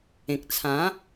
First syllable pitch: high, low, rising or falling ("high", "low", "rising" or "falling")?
low